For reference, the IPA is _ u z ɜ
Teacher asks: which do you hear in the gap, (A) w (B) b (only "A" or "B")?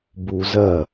B